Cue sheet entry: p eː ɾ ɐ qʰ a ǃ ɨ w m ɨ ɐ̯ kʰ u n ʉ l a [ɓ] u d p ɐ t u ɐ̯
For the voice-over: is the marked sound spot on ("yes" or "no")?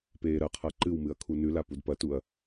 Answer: no